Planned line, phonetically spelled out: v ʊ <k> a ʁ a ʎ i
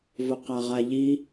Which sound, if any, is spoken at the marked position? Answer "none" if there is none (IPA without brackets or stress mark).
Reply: q